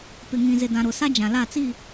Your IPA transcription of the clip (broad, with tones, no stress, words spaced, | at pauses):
pɪ˨ŋĩ˨zɪ˨dã˨ ɾʊ˨sa˦ d͡ʒã˨la˦˨t͡si˦˨